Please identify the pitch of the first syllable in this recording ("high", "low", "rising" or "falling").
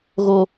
low